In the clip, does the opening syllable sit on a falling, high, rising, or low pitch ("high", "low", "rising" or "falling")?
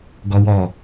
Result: high